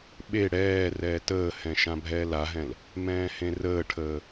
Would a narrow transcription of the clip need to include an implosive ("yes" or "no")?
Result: yes